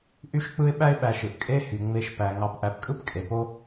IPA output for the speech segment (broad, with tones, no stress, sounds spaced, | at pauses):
ʔ y˦ ʃ k͡p ɯ˦ ɪ̯ ɓ æ˦ ɪ̯ ɓ æ˨ ʃ ɯ˩ ʔ kʼ e˦ h y˩ ŋ͡m e˨ ʃ p æ˩ ŋ ɑ˨ p ʔ æ˨ p kʼ ɯ˥ p kʼ e˩ p o˦